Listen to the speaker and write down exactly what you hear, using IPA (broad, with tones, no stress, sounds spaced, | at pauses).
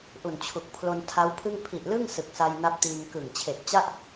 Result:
ʔ u˨˩ n t͡ɕʰ u˨˩ k̚ pʰ l o˧ n tʰ a˦˥ w pʰ ɯ˥˩ ŋ pʰ i˨˩ ʔ l ɯ˥˩ ŋ s ɯ˨˩ k̚ s a˧ j n a˦˥ p̚ t iː˧ ŋ k ɯ˨˩ ŋ t͡ɕʰ e˨˩ k̚ t͡ɕ a˥˩ ʔ